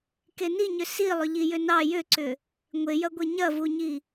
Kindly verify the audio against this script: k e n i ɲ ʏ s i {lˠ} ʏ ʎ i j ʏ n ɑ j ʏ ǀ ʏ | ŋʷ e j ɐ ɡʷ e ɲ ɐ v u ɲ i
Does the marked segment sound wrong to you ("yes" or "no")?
no